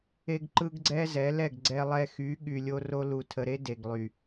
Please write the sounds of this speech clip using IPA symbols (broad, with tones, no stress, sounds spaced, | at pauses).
e˦ ɡ ǃ ɯ˦ ɡ ɡ͡ǀ ɛ˦ z ɛ˨˦ l ɛ˦˨ ɡ ɡ͡ǀ ɛ˧ lˠ ɛ˧ x y˨˦ ɠ y˧ lʲ o˦ r o˦ l u˨ tʰ ə˨ ɾ e˦ d e˨ ɡ lˠ y˨